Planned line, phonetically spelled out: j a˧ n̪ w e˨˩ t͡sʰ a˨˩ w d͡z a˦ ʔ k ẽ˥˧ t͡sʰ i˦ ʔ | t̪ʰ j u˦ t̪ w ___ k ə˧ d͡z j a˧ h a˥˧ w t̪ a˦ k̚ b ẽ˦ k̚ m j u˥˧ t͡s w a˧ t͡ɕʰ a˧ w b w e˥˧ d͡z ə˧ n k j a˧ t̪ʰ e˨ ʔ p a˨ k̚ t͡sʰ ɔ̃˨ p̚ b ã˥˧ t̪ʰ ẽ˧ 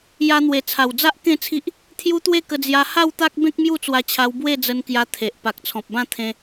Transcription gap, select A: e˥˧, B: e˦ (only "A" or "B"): A